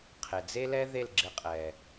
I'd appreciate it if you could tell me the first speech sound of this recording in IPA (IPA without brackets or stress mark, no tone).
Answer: qʰ